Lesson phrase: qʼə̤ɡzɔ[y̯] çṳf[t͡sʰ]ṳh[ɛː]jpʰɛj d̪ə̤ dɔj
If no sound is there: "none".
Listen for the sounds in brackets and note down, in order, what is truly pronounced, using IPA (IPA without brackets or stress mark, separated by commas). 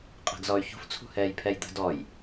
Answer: y̯, t͡sʰ, ɛː